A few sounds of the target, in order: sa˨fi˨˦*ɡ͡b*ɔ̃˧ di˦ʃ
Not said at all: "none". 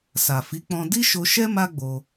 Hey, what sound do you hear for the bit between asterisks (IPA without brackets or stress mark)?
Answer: k͡p